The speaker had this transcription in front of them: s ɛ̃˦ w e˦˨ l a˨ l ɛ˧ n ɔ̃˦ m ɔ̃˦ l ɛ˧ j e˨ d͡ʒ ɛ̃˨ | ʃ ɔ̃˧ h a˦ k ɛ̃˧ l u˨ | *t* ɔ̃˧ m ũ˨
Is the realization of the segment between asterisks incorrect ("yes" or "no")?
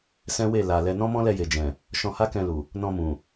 yes